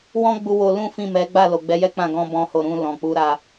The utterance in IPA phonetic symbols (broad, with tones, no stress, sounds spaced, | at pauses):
w ɔ̃˦ ɡ͡b u˧ w o˧ l ũ˦ f ĩ˦˨ m ɛ˨˦ ɡ͡b a˦˨ l o˨ ɡ͡b ɛ˨˦ j ɛ˦ k͡p ã˦˨ ɡ ɔ̃˧ b ɔ̃˦ h o˦˨ ɾ ũ˧ l ɔ̃˨ k͡p u˨˦ ɾ a˧